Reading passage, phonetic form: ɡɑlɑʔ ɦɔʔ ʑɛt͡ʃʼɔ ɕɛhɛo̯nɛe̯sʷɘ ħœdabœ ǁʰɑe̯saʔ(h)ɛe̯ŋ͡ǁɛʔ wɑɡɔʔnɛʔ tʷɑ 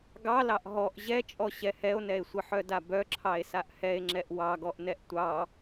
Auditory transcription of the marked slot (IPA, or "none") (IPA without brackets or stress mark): h